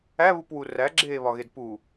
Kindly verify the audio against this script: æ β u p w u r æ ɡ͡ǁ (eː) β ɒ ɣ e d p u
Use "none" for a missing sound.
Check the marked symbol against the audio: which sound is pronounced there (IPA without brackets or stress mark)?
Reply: eː